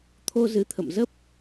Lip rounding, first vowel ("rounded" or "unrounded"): rounded